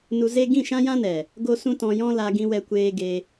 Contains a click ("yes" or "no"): no